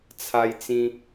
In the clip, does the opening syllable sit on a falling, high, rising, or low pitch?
high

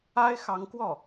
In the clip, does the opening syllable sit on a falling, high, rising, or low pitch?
high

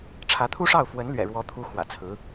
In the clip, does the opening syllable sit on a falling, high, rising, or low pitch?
rising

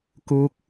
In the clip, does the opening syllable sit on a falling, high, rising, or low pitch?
rising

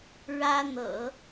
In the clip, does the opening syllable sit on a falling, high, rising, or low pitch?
high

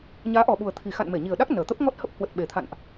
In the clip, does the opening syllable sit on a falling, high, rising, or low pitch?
rising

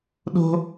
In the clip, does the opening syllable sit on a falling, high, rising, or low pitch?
high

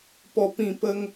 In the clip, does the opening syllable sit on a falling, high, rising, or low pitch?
low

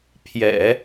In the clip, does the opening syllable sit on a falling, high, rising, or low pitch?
low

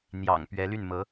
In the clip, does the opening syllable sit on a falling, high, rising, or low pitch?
low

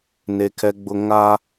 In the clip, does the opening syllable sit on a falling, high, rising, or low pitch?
high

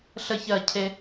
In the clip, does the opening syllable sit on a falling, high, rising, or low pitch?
falling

